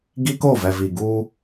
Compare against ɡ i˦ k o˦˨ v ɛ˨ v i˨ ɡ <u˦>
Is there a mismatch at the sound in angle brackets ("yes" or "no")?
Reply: no